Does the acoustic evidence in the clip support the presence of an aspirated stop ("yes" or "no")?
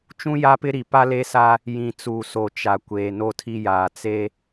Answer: yes